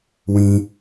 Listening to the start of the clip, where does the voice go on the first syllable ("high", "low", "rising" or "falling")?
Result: low